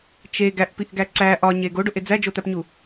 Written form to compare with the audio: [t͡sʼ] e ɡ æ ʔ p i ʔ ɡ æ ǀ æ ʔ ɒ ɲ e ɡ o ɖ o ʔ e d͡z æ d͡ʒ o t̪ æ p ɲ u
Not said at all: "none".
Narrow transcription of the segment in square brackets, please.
t͡ʃ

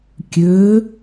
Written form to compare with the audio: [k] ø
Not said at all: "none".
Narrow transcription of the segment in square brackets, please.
kʲ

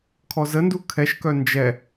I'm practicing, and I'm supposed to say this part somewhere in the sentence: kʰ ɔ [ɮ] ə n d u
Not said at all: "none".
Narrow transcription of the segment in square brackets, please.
z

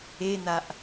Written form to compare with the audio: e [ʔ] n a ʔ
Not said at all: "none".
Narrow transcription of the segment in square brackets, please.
none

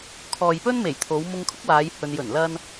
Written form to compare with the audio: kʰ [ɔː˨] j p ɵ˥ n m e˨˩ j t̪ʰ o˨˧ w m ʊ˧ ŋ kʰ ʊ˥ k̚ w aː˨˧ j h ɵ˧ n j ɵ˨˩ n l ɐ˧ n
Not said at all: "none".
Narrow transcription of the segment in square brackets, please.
ɔː˨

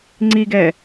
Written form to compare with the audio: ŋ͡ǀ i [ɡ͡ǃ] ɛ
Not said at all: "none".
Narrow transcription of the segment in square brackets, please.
ɡ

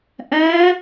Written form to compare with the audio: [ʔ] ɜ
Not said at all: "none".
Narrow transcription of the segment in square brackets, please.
ʔ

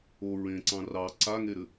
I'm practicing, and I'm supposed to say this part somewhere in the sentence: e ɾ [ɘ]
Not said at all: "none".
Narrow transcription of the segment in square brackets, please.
ɘ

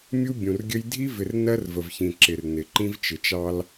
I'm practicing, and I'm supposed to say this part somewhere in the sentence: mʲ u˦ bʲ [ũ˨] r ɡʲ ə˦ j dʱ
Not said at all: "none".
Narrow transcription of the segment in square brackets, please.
ũ˨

